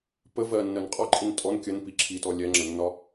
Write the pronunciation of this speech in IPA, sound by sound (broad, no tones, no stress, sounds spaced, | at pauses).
p ə v ɜ nː ɜ n qʼ ɒ ǃʼ i n tʼ ɔ n kʲ ə n p i ǁʰ i t ɔ lʲ ɛ ŋ͡ǁ ə nː ɒ